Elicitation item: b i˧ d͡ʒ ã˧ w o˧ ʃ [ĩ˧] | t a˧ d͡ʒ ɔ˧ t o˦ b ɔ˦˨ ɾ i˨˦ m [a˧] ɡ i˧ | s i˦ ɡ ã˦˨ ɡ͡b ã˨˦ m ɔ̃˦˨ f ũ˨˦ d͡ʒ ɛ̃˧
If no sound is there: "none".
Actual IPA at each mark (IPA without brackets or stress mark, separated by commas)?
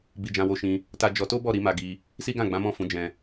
ĩ˧, a˧